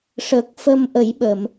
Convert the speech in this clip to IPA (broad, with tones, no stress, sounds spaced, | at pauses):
ʂ ə˨˩ k̚ f ə˧ m ʔ ə˨˩˦ j ɓ ə˨˩˨ m